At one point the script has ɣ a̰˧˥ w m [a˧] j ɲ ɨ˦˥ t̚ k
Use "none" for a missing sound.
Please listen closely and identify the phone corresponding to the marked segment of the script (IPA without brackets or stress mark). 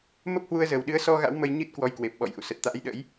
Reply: ə˧